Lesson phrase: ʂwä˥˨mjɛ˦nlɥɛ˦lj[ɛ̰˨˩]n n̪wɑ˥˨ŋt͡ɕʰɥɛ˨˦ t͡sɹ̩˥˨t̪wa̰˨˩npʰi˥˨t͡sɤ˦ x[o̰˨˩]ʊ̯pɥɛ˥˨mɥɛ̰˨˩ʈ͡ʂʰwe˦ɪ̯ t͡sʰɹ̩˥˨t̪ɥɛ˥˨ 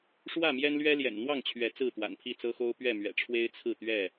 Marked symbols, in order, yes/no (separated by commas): yes, no